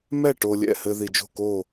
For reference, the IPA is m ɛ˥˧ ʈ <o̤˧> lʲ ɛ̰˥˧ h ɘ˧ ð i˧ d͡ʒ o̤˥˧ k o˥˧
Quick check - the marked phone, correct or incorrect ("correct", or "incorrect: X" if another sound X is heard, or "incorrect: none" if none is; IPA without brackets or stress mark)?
incorrect: o˧